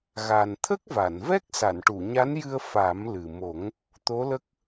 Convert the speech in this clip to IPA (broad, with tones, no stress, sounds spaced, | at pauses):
ɣ a˨˩ n t̪ʰ ə˦˥ k̚ v a˨˩˨ n v ɛ˦˥ k̚ s a˨˩˨ n ʈ u˨˩˨ ɲ a˧˥ n j ɨ˧ ə̯ f a˨˩˦ m l ɨ˨˩ m o˨˩˦ ŋ | t̪ o˧˥ l ə˦˥ k̚